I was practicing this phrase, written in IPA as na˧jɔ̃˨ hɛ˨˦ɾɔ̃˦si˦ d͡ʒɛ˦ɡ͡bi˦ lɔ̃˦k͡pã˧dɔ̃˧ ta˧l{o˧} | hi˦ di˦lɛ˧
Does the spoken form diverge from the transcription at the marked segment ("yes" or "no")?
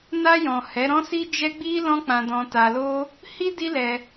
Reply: yes